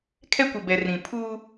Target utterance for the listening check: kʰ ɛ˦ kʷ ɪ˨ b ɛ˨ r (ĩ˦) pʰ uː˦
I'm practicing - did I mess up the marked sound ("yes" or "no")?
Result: yes